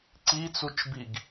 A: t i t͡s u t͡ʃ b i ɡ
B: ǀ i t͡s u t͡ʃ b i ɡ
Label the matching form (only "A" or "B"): B